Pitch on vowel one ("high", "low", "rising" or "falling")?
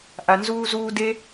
low